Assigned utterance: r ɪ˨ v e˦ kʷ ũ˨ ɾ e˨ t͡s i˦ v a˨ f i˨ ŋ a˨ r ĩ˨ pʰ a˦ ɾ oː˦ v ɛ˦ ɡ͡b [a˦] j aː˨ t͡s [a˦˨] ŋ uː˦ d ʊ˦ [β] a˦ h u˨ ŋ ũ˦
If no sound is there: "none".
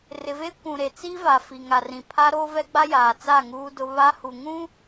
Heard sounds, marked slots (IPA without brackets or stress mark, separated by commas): a˦, a˦˨, β